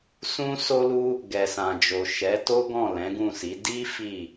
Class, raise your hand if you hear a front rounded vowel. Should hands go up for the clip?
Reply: no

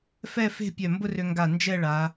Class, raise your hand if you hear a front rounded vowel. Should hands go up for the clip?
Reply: yes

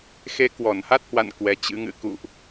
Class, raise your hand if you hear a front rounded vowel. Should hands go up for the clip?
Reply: no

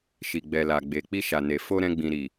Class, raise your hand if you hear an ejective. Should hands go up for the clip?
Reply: no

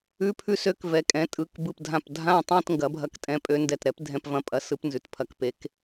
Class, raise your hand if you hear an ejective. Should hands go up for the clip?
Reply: yes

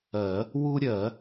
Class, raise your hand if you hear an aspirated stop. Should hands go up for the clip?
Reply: no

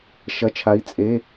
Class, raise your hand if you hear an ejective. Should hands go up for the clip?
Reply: yes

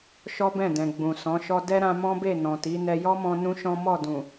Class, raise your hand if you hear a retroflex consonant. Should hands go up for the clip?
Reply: no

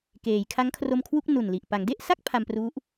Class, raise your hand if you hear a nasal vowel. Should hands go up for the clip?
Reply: no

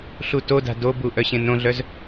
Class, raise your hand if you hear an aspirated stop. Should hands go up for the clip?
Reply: no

